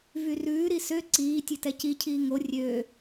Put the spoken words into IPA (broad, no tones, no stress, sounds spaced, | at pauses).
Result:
v y r ʉː ɾ i s ø ǀ iː tʲ e t ɛ c i cʰ iː ŋ o rʲ øː